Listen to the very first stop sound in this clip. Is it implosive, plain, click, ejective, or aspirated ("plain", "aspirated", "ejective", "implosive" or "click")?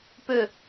plain